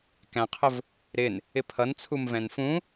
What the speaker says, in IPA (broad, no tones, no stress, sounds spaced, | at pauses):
k æ̃ qʰ ʊ v | ɾ ɪ n | ɪ pʰ ʌ n t͡sʰ u m v ɛ̃ n f ũ